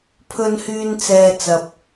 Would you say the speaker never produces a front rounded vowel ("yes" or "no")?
no